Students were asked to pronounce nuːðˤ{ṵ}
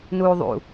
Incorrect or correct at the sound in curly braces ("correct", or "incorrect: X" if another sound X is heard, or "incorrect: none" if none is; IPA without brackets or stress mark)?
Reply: correct